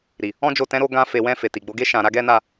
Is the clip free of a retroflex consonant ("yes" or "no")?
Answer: yes